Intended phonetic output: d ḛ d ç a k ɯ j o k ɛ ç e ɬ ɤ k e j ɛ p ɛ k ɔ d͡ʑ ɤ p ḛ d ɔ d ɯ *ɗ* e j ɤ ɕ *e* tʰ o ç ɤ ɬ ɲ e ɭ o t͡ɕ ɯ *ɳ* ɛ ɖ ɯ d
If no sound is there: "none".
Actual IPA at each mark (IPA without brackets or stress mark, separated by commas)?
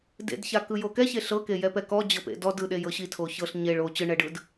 ɗ, i, ɳ